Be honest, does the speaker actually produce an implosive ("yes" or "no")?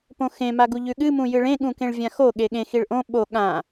yes